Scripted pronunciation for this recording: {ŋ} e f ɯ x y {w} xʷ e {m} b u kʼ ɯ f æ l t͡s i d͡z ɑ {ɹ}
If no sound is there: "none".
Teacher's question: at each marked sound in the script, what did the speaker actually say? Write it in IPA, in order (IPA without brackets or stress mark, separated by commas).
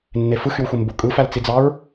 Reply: nː, w, m, ɹ